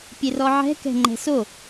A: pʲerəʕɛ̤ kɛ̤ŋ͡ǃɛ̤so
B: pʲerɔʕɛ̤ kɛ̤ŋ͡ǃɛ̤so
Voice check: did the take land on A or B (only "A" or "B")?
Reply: B